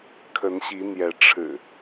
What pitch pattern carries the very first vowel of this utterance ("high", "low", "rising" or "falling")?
rising